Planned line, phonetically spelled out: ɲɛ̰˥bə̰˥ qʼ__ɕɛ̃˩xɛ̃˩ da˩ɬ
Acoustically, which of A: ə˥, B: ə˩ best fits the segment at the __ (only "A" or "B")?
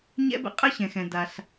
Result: A